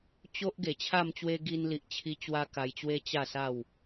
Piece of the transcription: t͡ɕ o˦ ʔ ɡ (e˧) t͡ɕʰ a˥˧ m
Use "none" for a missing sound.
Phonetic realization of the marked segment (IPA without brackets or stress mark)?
e˨˩